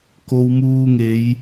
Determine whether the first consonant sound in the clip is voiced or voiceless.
voiceless